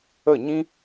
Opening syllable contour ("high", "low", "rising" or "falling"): falling